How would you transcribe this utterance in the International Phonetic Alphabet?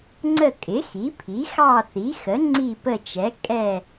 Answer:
ŋ͡ǀ ə˦˨ kʼ ɪ˩˥ x i˩˥ pʰ i˩˥ x ɑ˦˨ θ i˩˥ x ə˩˥ ŋ͡ǀ i˦˨ p ə˦˨ t͡ʃ ɛ˩˥ kʼ ɛ˦˨

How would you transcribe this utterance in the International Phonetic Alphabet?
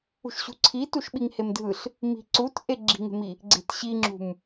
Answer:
ṳ ʃ ɕ ṳ ǀʰ i t u ʃ ɓ i ŋ h e m dʱ ɯ ɬ | m i̤ ǀ u t ʔ e ɡ͡ǁ i̤ ŋ e̤ m i | ɡ͡ǀ e̤ t ɕ i ŋ͡ǁ ṳ m

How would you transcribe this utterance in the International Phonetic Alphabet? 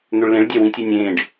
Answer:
n̪ ø ɭ l ẽ ɭ dʲ æ w ĩ tʲ ø nʲ ẽː ɖ

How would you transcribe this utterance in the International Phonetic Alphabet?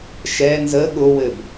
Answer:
ʃ ɛ n z ə ɠ ʊ w ɘ b

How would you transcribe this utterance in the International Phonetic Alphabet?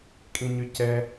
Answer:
kʼ ĩ ɲ y c ɛ

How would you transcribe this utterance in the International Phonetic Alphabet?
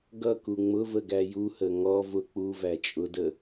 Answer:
ɡ ʌ k u ŋ͡m ʊ v ə ɡ æ j u h ə ŋ ɔ v ʊ k͡p u v æ t͡ʃʼ ʊ d ə

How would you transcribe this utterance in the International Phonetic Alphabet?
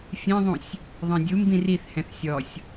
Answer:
fʲ ɛ̃ ðˤ ũ sʲ | ðˤ ɛ̃ dʲ u m b ĩ r i θ h ɛ̃ θ sʲ ɔ sʲ

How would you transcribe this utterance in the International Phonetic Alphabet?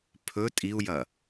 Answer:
pʰ ɵ tʼ i u̯ j ɐ

